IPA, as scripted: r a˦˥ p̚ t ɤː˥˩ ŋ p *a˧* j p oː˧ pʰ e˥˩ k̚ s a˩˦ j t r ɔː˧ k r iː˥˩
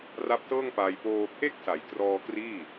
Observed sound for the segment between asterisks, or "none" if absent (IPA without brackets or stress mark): aː˧